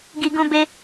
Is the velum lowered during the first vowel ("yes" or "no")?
no